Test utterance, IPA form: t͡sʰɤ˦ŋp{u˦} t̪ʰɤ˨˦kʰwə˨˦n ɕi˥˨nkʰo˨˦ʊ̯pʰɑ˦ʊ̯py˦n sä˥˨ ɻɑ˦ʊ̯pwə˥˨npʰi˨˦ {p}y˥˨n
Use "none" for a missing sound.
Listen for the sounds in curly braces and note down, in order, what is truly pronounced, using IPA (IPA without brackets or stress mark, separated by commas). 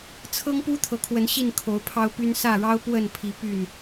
u˦, p